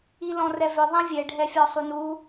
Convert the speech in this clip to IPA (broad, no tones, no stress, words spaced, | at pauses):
ilɔ̃rɛvʏ ðˤĩvʲɛ ɖʱɛfʲɔsˤunu